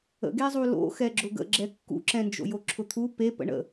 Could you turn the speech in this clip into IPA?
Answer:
ə̰ ɡ e zˤ u l o̰ x ɛ ɡ͡ǁ ʊ ɡ ə̰ ɡ͡ǁ ɛ kː ṵ ǁ ɛ̃ n d͡ʒ o̰ j o ǁʰ ʊ t̪ʰ u p e p ə̰ ɳ ə̰

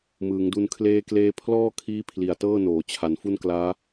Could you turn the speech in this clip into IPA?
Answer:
m ɯː˩˦ ŋ d u˧ n kʰ l eː˧ k l eː˧ pʰ l ɔː˥˩ kʰ iː˦˥ pʰ l i˨˩ a̯ t ɤː˥˩ n oː˩˦ t͡ɕʰ a˩˦ n f u˥˩ n k l aː˦˥

